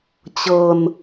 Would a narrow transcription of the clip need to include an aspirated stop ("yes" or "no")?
no